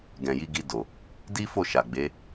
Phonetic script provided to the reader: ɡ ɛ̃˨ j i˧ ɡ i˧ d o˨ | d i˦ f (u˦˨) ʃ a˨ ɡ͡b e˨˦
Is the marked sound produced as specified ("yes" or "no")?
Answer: no